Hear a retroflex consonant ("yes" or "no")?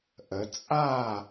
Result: no